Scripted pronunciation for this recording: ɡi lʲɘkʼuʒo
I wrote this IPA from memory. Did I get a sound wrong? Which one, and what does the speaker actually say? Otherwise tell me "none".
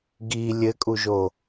none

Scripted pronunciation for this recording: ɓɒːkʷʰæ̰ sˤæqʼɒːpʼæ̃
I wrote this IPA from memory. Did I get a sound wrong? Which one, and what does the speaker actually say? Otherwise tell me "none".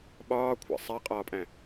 none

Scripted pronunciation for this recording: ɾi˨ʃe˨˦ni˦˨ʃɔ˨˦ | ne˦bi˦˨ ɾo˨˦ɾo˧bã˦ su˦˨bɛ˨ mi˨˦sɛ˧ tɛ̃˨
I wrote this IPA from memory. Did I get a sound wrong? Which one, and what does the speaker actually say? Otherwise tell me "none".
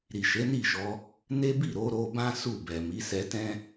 ɛ̃˨ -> ɛ̃˦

